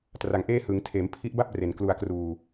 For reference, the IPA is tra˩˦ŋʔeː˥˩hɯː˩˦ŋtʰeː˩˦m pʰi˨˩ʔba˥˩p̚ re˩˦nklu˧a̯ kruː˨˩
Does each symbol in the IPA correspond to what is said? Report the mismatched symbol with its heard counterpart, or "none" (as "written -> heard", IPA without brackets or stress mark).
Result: i˨˩ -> i˦˥